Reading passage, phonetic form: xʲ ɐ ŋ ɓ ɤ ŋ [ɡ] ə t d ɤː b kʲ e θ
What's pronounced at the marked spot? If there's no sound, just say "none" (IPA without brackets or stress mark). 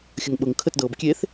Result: kʰ